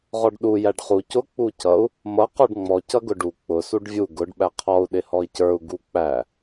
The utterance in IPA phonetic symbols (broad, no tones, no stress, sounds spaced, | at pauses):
ʁ ɔ ɖ ɗ u j æ ɖ χ u c ʊ k͡p u c ʌ u̯ | m ʌ q ɔ ɖ ŋ͡m ɔ c ʌ ɡ ʊ ɖ u k͡p ʊ s u ɖ vʲ u ɡ ʊ ɖ ɓ æ qʰ ɔ u̯ ɗ ɪ h ɔ i̯ c ə˞ u̯ ɡ u k͡p æ